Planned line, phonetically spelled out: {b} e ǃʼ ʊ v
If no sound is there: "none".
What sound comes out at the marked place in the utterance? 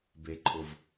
b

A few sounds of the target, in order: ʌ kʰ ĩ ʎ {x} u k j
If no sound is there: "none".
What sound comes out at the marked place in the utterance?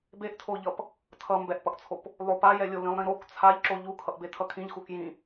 x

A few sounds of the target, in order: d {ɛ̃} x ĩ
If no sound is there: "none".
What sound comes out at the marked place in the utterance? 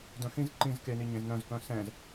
œ̃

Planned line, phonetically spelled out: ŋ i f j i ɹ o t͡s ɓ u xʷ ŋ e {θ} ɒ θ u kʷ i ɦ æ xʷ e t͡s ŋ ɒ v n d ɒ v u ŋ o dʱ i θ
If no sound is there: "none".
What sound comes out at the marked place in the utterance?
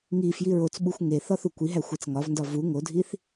θ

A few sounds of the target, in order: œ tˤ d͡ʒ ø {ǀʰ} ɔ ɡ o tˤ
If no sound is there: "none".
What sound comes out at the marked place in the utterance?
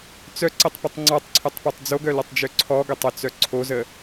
ǀʰ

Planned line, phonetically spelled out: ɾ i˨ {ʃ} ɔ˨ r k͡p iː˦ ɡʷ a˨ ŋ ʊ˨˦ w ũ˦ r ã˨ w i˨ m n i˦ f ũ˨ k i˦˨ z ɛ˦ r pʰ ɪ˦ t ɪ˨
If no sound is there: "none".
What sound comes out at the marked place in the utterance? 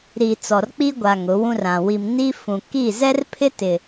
t͡s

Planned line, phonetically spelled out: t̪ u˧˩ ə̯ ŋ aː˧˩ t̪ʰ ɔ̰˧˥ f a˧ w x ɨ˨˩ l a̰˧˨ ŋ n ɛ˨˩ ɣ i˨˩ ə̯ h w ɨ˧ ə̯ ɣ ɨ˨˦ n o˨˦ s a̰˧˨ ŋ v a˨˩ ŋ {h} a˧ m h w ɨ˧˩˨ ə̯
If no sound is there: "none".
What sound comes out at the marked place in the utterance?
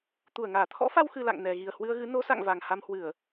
h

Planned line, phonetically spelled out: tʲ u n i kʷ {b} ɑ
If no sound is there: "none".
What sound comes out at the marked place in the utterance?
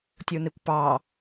p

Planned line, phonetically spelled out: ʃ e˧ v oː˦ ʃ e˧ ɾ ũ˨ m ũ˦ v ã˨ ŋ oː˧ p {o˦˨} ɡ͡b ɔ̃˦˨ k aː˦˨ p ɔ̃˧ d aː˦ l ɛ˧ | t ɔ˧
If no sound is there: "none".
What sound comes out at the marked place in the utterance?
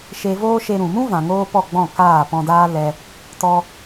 ɔ˦˨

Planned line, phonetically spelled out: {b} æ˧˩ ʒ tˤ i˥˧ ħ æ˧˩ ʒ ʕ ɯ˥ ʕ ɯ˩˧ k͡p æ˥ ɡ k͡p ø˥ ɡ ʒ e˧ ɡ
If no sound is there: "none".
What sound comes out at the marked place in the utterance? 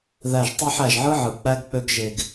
ð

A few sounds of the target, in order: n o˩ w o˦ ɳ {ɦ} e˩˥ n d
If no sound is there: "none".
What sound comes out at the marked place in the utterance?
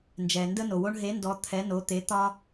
ɦ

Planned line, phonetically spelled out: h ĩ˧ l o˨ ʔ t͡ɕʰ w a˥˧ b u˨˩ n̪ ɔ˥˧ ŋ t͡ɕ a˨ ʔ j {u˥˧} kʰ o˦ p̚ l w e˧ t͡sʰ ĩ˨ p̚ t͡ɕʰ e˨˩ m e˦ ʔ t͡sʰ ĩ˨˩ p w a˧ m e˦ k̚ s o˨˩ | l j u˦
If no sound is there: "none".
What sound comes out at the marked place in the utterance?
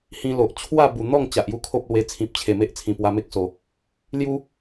u˥˧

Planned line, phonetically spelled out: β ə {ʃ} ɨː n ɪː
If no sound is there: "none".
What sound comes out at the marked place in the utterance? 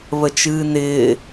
t͡ʃ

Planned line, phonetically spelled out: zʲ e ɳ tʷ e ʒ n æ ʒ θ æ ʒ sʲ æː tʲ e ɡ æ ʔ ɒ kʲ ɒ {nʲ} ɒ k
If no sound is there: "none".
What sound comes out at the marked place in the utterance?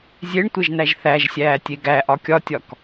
tʲ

